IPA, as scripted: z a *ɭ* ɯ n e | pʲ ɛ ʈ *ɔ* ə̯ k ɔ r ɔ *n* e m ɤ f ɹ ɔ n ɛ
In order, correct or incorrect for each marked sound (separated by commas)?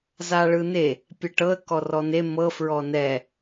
correct, incorrect, correct